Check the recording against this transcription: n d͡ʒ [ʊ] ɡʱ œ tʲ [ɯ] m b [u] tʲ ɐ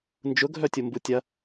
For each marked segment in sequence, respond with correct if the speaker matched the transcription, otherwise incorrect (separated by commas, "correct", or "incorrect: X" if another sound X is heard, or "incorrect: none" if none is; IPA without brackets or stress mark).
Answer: correct, incorrect: ʊ, correct